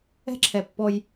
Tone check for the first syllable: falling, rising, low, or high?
high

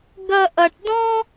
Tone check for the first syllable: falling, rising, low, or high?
high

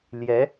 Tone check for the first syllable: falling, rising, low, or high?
rising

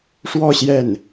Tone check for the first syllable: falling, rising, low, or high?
falling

